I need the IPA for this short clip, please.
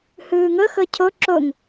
h ɯː ŋ ɤ x ɤ cʰ o ǁ o ŋ

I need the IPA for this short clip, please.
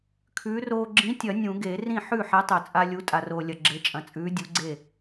kʰ ʉː˨˥ r oː˦ ɡ͡ǁ ĩ˨˥ tʲ ɐ˨˩˦ nʲ ũ˨˩˦ ɡ e˨˩˦ r ĩ˥˩ ħ ʉ˥˩ ħ e˨˥ tˤ ɵ˨˩˦ t͡sʼ a˦ lʲ u˨˥ tʼ a˨ r oː˨ lʲ ɐ˨ ɡ͡ǁ e˨˥ t͡ʃʼ ɐ̃˨ t͡sʼ ʉː˨˥ dʲ u˨˥ ɡ͡ǀ e˥˩

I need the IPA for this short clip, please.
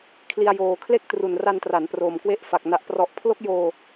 kʰ l i˧ a̯ j oː˨˩ kʰ l e˥˩ k̚ t r u˨˩ n r a˧ n t r a˩˦ n p r oː˨˩ m k w e˦˥ ʔ f a˨˩ k̚ n a˨˩ ʔ p r ɔ˨˩ ʔ pʰ l o˦˥ k̚ j oː˧

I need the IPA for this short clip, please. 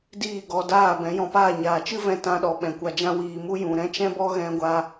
d iː˦˨ ɡ ɔ˧ d aː˦˨ b ɛ̃˨˦ j ɔ̃˧ p aː˦˨ ɲ aː˨ t͡ʃ ɨ˦ v ɛ̃˧ t ã˧ ɗ ɔ˨ ɓ ɛ̃˨ kʷ a˧ d͡ʒ ã˦ w iː˧ m u˦ j ũ˨ ɾ ɛ̃˦ t͡ʃ ɛ̃˦ b ɔ˦ ɣ ɛ̃˦ ɡʷ a˦

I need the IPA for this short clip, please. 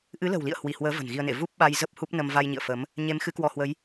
ʔ ɨ˨˦ l ə̤˨˩ w l ḭ˧˨ ə̯ h w i˧˩ h w əː˨˦ v ə̤˨˩ n ɣ i˧ ə̯ n ḛ˧˨ v u˦˥ p̚ ɓ a˧ j z ə˦˥ p̚ h u˦˥ p̚ n ə˧ m v a˧ j ɲ ḭ˧˨ ə̯ f ə˨˦ m | ɲ e˨˦ m x ɨ˨˦ k w ɔ˧ h w ə˨˦ j

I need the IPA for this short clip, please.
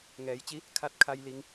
ŋ ɛː˩˧ j t͡ɕ i˧˥ | kʰ a˧˥ t̚ kʰ a˧ j l i˩˧ ŋ

